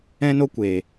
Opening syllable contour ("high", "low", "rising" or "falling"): high